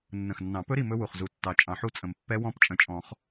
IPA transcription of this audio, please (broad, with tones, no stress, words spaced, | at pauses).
nːə̃˨˩xnːɑ̃˨˩˦pɵ˦˥ ɾi˦˨ mɵ˦˥wu˨˩χzu˨˩˦tːɑ˨˩ t͡ʃʼɑ̃˨˩˦ħu˦˨t͡sʼə̃˨˩˦m pːɛ˦˥wɔ̃˦˥p t͡ʃʼə̃˨˩t͡ʃʼɔ̃˨˩˦χ